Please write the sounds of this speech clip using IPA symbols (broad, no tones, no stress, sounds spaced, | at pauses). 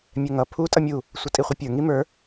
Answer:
mʲ ɛ ŋ ʌ pʰ u tʼ ʌ mʲ u | sʷ ʌ tʼ i χʷ i pʲ ə˞ ŋ i m ə˞